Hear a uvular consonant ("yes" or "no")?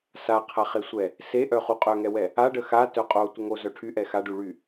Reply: yes